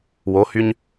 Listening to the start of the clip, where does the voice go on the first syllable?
rising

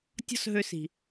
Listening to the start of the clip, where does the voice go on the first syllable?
high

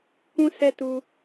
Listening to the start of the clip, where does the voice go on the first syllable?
high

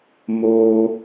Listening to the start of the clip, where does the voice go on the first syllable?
high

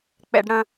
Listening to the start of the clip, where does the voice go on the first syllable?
high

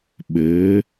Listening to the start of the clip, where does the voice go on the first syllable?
rising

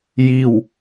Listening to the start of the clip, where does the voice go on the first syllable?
falling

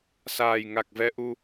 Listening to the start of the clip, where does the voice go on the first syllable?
low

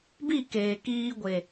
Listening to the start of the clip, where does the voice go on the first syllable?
falling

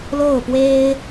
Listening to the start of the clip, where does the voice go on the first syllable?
falling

